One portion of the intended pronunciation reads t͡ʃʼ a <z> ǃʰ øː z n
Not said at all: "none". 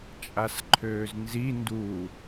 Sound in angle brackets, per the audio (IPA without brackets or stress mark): s